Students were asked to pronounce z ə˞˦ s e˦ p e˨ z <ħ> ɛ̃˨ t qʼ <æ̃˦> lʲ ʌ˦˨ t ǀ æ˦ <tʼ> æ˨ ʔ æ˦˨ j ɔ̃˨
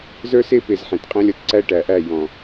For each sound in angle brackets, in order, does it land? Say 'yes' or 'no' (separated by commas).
yes, yes, no